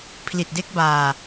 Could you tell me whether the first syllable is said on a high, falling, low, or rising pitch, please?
low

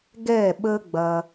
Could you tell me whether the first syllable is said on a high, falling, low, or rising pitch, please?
falling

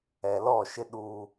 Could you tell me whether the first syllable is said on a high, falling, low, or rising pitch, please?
low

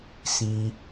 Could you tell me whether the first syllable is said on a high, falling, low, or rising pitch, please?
high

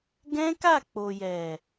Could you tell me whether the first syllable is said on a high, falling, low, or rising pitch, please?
high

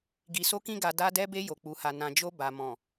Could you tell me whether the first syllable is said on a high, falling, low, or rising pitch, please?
low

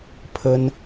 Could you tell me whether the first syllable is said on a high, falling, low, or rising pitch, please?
high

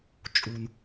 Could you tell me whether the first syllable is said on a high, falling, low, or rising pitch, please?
low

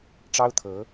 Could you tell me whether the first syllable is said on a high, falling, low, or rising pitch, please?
high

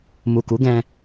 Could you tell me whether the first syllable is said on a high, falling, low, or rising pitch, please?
low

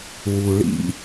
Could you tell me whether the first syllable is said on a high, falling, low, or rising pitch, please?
low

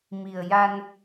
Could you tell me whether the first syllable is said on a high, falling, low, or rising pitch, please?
low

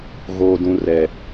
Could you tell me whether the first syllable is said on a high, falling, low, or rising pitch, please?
low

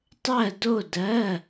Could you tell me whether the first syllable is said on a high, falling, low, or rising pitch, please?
falling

